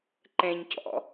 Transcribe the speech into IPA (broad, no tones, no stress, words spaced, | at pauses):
ǃɛ̃ɲcɔ̰